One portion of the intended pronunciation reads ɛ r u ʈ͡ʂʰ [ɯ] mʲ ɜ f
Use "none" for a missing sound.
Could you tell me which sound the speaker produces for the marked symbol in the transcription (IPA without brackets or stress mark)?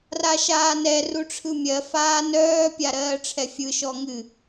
ɯ